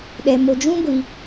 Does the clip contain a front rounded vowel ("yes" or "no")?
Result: no